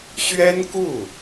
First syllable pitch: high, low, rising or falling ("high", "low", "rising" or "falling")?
high